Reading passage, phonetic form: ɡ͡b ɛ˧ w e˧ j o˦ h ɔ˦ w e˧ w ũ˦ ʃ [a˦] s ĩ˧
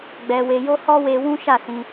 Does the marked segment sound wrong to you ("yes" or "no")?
yes